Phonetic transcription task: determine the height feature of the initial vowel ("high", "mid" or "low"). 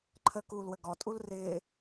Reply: mid